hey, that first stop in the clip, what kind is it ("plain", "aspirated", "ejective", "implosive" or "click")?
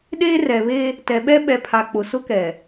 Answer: implosive